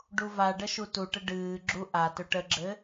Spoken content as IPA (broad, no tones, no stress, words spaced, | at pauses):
ɖuvaɖə ʃutuʈə ɖɨːɡ͡ǁu ʔa tɵʈəɡ͡ǁɘ